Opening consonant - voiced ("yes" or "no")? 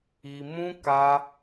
yes